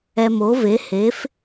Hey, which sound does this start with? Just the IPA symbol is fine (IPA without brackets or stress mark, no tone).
ɛ